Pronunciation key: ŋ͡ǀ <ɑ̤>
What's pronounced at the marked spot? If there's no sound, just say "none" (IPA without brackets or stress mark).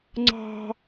ɑ̤